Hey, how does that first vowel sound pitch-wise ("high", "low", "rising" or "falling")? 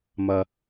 low